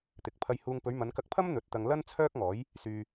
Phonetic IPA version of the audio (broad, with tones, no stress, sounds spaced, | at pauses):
t̪ ɪ˨˥ k̚ pʰ ɐ˧ j h uː˧ ŋ p ɵ˨˧ ɥ m ɐ˨˧ n k ɐ˧ k̚ pʰ ɐ˥ m n̪ ɵ˨˥ t̚ t̪ ɐ˧ ŋ l ɐ˥ n t͡sʰ œː˥ k̚ ŋ ɔː˨˥ j | s yː˧